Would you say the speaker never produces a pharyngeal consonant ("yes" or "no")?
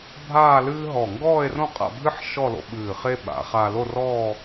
no